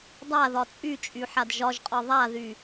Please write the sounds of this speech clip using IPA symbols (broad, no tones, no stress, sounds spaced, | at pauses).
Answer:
dˤ a ð ɒ t͡sʼ y t͡ʃʼ y ħ a d ʒ ɒ ʒ qʼ ɒ ðˤ a ð y